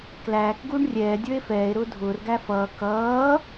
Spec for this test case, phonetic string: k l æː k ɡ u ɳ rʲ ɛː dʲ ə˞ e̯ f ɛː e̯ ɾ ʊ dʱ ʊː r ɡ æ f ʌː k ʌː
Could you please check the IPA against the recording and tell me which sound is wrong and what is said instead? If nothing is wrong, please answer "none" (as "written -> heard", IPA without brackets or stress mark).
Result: ʊ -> ʊː